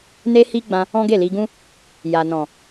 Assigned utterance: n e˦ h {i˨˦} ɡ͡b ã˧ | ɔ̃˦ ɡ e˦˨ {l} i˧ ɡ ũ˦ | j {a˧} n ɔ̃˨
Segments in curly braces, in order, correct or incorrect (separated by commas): incorrect, correct, incorrect